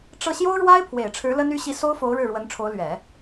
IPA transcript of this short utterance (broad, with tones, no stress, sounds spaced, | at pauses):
ʈ͡ʂ ɤ˥˩ ɕ j o˥ ʊ̯ ɻ w a˥ ɪ̯ pʰ w e˨˩ ɪ̯ ʈ͡ʂʰ ɻ̩˧˥ l ə˥ n y˥ ɕ i˥ s o˥ ʊ̯ f o˧˥ ʊ̯ ɻ ɻ̩˥˩ ɻ w ə˧˥ n ʈ͡ʂʰ o˧˥ ʊ̯ l ɥ ɛ˨˩˦